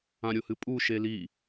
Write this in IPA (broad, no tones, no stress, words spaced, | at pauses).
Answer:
ãɾʲohɨpʼu ʃeli